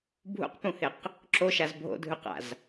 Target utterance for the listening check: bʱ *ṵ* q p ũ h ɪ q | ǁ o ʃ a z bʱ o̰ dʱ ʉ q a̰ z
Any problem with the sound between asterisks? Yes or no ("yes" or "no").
no